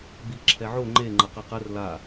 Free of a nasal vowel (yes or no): yes